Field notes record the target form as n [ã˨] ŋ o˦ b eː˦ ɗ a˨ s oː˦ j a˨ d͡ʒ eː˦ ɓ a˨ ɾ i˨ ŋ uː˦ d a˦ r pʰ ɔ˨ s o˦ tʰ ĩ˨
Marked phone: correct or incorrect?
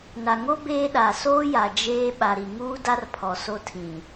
incorrect